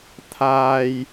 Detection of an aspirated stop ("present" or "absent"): present